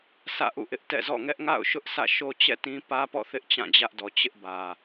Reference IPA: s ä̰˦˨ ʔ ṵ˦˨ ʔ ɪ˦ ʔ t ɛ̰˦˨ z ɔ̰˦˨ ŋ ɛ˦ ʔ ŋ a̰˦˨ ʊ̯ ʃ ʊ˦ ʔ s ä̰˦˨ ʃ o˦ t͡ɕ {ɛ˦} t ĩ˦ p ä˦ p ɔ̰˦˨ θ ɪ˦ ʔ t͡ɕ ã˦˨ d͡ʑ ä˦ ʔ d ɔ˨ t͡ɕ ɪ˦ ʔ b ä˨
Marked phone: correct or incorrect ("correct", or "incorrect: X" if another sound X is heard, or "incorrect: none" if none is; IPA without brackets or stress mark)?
incorrect: ɛ̰˦˨